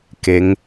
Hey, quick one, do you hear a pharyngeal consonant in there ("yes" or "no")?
no